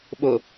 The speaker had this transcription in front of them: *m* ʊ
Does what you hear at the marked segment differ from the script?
yes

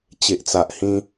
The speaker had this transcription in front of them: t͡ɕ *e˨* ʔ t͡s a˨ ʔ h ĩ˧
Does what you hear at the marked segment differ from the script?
no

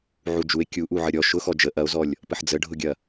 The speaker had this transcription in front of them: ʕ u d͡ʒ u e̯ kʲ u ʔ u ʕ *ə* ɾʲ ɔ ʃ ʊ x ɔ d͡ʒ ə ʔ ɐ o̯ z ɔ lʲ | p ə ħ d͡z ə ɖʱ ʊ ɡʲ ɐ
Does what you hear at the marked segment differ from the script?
no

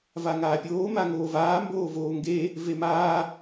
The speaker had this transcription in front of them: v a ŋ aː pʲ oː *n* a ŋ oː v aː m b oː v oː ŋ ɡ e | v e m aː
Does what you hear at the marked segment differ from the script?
yes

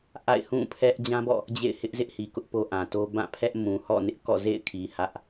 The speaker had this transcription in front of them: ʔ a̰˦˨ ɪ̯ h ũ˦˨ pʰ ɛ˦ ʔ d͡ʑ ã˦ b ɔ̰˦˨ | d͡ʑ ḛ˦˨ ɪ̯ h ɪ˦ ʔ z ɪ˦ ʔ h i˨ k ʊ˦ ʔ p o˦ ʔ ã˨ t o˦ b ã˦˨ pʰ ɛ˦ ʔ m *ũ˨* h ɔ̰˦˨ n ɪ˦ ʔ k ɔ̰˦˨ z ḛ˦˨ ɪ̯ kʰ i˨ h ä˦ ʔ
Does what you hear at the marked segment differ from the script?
no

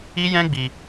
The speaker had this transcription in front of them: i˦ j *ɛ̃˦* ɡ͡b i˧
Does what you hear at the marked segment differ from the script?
no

